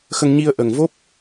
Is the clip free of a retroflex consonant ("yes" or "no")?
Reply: yes